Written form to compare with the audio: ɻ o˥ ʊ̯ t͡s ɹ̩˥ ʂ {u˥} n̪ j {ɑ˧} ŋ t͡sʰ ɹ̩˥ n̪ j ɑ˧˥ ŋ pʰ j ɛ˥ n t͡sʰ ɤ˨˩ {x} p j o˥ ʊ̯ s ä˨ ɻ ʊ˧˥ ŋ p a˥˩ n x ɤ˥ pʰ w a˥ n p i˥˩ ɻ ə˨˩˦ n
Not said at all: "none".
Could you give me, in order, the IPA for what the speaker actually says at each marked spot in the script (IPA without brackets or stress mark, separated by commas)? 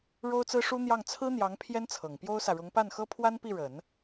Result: u˥, ɑ˥˩, ŋ